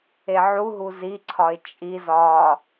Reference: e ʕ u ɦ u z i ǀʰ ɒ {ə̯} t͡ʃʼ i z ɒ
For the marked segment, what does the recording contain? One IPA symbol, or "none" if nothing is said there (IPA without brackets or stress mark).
ɪ̯